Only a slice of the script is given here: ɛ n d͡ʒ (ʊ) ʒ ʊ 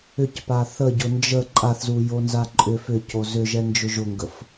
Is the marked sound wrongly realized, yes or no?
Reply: no